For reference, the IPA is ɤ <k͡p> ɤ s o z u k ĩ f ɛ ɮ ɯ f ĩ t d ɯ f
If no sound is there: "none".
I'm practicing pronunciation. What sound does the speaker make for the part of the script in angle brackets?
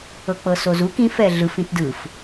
k͡p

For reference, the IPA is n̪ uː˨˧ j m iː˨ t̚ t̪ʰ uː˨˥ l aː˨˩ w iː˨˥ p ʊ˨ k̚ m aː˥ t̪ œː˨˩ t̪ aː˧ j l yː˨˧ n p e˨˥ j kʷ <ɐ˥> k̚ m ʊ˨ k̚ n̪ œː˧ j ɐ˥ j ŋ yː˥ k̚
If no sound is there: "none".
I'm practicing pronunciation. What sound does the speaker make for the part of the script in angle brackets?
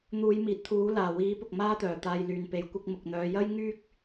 ɐ˥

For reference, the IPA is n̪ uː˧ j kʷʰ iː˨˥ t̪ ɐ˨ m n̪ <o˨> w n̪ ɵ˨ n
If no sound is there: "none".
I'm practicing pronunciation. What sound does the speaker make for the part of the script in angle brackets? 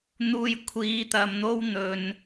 o˥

